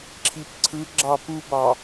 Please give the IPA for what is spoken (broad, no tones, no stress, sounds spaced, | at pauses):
ǁʰ i p ǀʰ ɯ ɡ͡ǁ ɑ p u b ɑ